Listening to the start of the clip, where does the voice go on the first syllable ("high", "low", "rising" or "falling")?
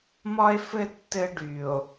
high